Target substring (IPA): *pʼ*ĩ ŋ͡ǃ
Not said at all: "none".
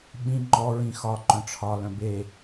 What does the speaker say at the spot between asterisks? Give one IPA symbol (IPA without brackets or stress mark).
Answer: ɓ